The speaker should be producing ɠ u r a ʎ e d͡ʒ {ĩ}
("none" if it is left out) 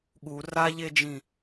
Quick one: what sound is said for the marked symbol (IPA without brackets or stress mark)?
ĩ